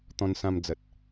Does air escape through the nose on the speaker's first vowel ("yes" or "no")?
yes